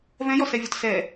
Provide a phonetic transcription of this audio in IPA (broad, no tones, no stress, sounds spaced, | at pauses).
v ɛ̃ j ɔ s ɛ vʲ ɔ t s ɛ